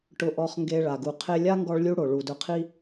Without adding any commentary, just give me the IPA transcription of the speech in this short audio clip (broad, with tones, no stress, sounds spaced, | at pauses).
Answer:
ʈ ʊ˧ ʔ ɔ˧ χ ŋ ɡ e˧ ɭ a˨ ɡ u˨ qʰ e˧ lʲ a˦ ŋ ɡ ɔ˧ ɭ lʲ u˧ ɽ o˨ ɭ u˨ d ʊ˧ qʰ i˦